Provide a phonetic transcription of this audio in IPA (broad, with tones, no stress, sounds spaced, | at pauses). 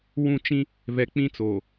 w ũ˦˨ t͡ʃ ĩ˦ | v ɛ˨ k͡p ĩ˦ t͡s oː˨